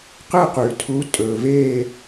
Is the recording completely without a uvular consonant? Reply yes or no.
no